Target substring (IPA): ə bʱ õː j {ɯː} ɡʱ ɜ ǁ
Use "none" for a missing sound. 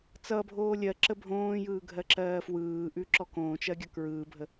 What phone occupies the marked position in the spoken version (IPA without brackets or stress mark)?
ɯː